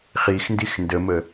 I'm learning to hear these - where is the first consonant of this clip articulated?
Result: uvula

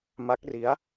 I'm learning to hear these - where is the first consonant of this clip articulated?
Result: lips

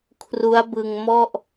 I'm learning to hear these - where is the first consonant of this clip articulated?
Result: velum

